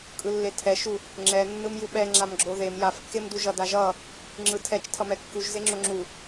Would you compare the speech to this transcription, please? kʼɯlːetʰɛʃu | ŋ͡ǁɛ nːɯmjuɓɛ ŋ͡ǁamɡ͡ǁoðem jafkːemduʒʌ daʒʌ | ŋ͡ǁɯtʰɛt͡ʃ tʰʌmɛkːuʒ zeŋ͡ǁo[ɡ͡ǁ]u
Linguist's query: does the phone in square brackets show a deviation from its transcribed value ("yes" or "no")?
yes